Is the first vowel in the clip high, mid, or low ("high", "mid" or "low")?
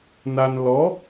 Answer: low